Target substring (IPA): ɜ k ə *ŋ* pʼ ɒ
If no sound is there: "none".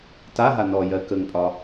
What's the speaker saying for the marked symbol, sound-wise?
ŋ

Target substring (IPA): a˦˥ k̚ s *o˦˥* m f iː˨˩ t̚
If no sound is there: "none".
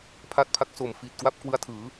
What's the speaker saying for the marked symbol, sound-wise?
o˨˩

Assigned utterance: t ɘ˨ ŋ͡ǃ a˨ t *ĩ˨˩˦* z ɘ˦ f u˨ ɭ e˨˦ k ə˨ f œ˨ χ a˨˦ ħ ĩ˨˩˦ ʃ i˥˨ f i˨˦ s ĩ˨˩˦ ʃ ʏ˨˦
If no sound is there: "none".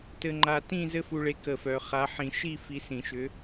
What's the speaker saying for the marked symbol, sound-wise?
ĩ˥˨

